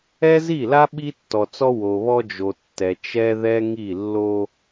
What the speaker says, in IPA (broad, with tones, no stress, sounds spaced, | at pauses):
ɛ˦ z i˦˨ l a˦ ɓ i˦ tː ɔ˨ t͡s ɔ˦ w o˨ β ɔ˦ d͡ʒ o˨ tː ɛ˨ t͡ʃ ɛ˦ ð ɛ˦ ŋ i˦˨ lː o˦